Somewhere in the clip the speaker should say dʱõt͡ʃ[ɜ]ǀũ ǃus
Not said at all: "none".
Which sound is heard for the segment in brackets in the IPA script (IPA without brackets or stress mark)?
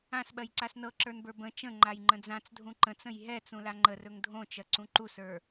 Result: ɜ